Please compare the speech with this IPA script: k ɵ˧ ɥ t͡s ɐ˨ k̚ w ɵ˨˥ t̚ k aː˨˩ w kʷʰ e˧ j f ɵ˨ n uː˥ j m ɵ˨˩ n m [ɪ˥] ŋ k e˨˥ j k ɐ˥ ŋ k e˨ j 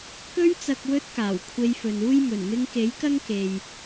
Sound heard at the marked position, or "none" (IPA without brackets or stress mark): ɪ˧